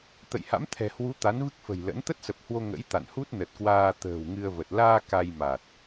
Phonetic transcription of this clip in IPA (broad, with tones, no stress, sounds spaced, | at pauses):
t̪ ə̰˧˨ j h a̰˧˥ m t̪ʰ ɛ̤˨˩ h w u˨˦ t̪ a˨˦ n v ɨ˦˥ k̚ f ə̤˨˩ j l ə̰˧˥ n t̪ ə˦˥ t̚ s ə˨˩ p̚ h w o˧ ŋ ə̰˧˥ j t̪ a̰˧˨ n h u˦˥ t̚ n ə˨˩ t̚ k w aː˧ t̪ ə̤ː˨˩ w ŋ ɨ˧ ə̯ v ə˨˩ t̚ l aː˧ k a˧ j m a˨˩ t̚